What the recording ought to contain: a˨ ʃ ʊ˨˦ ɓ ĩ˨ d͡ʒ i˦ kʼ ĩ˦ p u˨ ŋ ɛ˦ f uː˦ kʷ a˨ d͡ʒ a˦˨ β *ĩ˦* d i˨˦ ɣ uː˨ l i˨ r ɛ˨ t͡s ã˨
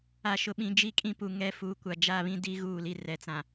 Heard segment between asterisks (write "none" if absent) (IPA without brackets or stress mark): ĩ˦